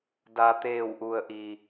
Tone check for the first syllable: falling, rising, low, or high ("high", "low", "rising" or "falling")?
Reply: low